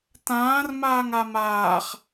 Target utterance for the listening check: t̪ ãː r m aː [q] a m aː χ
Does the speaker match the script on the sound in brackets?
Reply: no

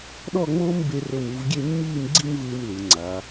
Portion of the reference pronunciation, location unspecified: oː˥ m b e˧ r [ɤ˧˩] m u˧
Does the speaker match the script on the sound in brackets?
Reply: yes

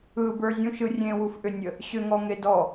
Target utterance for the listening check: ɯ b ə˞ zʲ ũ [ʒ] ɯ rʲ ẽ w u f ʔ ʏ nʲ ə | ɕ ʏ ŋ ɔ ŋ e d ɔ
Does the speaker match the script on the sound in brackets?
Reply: no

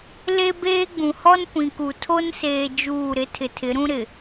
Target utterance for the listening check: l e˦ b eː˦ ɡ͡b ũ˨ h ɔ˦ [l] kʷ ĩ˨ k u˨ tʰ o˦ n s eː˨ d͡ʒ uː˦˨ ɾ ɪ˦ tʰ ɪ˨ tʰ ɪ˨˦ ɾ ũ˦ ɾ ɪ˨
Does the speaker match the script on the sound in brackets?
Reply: no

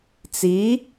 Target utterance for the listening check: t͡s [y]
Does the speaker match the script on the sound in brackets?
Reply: no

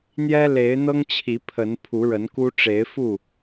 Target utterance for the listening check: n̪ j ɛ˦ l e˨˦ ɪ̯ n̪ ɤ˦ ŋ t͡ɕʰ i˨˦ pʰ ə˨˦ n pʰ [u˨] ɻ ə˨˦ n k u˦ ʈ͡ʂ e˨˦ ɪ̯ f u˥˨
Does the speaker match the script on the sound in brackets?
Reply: no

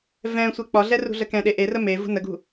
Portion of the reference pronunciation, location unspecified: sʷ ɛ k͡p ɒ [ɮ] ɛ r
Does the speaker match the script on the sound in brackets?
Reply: yes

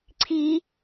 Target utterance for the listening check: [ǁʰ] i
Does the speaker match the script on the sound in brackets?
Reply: no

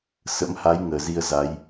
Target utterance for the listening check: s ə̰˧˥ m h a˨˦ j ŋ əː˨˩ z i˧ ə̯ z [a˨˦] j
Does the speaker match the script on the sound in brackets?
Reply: yes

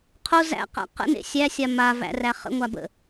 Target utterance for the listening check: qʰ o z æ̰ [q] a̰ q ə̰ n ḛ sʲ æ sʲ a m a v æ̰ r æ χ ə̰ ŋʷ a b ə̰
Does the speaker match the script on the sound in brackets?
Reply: yes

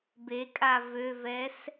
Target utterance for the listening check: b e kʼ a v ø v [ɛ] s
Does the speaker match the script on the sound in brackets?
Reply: yes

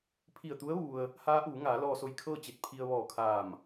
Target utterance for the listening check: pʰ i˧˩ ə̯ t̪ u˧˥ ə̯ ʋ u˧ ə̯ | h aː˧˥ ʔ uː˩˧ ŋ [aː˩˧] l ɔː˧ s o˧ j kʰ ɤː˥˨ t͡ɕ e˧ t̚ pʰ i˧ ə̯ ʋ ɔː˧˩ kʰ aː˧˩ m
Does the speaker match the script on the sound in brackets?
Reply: yes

